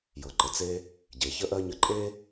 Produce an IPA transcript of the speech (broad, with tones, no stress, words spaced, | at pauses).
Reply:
jɤ˩ ǃə˩t͡se˧ | ɟe˩çə˥ʔɜ˥ɲə˧ ǃʼe˥